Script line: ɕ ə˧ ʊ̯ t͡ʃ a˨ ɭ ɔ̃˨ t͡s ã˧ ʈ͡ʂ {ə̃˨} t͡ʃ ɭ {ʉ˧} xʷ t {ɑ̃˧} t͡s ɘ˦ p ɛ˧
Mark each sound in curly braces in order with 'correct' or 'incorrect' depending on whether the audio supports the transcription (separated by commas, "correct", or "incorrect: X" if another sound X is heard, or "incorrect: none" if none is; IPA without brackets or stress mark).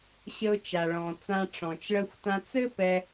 incorrect: ɔ̃˨, incorrect: ə˧, incorrect: ã˧